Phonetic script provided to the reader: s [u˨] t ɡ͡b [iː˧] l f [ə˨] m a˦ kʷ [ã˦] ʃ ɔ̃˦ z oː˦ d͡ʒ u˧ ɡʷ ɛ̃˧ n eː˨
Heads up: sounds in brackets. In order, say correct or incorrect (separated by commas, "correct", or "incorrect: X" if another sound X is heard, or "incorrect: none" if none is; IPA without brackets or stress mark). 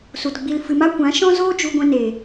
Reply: correct, incorrect: i˧, incorrect: ɨ˨, incorrect: ã˨˦